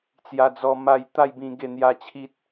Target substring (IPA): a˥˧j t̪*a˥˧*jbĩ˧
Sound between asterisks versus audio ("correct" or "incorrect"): correct